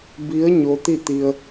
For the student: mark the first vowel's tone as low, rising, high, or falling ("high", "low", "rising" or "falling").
rising